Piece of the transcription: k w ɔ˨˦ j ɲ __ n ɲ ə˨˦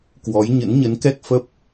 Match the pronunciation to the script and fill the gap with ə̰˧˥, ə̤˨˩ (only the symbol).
ə̰˧˥